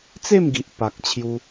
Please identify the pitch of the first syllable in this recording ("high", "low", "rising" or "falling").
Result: falling